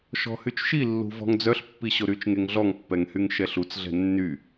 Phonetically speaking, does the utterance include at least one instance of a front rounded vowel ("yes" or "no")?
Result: yes